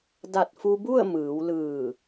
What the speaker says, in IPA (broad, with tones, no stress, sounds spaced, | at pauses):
d a˧˩ t̚ f u˧ b u˥˨ ə̯ m ɯː˩˧ w l ɯː˧˩